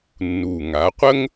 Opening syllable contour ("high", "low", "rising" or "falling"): low